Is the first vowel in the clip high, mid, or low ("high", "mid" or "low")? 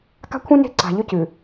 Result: low